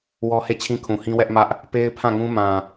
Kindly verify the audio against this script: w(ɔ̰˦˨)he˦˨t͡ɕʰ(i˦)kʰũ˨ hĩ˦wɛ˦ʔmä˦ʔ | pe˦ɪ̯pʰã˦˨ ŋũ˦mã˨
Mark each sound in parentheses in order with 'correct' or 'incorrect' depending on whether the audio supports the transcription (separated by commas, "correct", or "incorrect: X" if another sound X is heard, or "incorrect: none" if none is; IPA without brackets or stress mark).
incorrect: ɔ˦, incorrect: ĩ˦